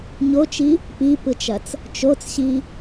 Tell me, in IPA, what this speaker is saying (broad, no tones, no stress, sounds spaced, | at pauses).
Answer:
ɲ o t͡ʃ i | p i p ɯ t͡ʃ ɐ t͡s | t͡ʃ o t͡s ɕ i